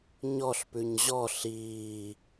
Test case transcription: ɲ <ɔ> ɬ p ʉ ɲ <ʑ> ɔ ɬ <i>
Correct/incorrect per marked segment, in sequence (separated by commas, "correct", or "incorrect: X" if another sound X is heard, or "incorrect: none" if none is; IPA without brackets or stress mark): correct, correct, incorrect: iː